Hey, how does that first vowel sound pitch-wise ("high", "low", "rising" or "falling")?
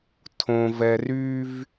low